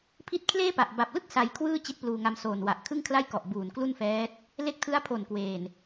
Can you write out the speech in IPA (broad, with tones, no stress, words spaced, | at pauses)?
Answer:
pʰi˦˥t̚kʰleː˥˩pa˨˩ʔ ba˨˩p̚lɯ˥˩k̚ sa˧jkʰwɯː˥˩ t͡ɕi˦˥t̚pluː˧ŋa˧msoː˨˩n wa˨˩ʔkʰɯ˥˩ŋkʰla˥˩jkɔ˨˩ʔ buː˨˩nklu˥˩nfɛː˦˥t̚ | le˦˥k̚tʰɯ˦˥a̯pʰo˨˩n kweː˨˩n